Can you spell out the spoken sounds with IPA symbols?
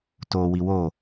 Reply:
t o w i w o

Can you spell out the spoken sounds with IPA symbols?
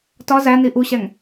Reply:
t ɒ z æ n i ʔ u ɕ æ ŋ

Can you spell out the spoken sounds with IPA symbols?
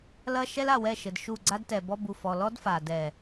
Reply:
l ɐ˦ ʃ ɛ˦ l a˦˨ w ɛ˦˨ ʃ ɘ˨ d ʃ u˦˨ ɡ͡ǀ a˦ d t ɛ˨ b ɔ˦ b u˨ f ɔ˨ l ɔ˦ d f a˨ d ɛ˦˨

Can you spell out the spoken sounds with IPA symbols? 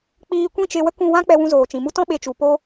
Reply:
k͡p iː˧ kʷ ĩ˦˨ t͡ʃ e˧ w ə˦ k ũ˧ w ã˦ k͡p ɛ˧ w ũ˧ z oː˨ t͡ʃ ĩ˨ m u˦ t ɔ̃˦ ɓ e˧ t͡ʃ u˨ p o˧

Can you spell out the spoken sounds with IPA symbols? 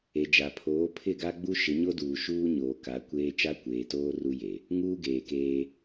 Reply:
e˨ d͡ʒ a˨ pʰ oː˨˦ pʰ ɪ˦˨ ɡ a˦ ɡ͡b u˦ ʃ ɪ˨˦ ɲ o˦ d uː˨ ʃ uː˦ ɲ oː˨ k a˨˦ kʷ eː˦ t͡ʃ a˦ kʷ eː˨ t oː˦ r u˦ j e˨ | ŋ uː˦ ɡ eː˨ k eː˦

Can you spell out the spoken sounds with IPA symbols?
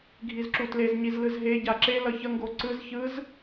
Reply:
ɡʱ i z ǁ u t l e z ɲ i z l ɯ z ɦ e ɟ a ǁ e l ʌ ç ʌ ŋ ɡ o ǀ ɯ z ç ɯ z

